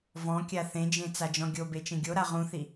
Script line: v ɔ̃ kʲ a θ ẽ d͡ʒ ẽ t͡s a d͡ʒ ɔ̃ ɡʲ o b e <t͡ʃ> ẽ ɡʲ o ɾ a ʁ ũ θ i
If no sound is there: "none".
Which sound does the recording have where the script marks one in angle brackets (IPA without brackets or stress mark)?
t͡ʃ